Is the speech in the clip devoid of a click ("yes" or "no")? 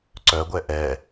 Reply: no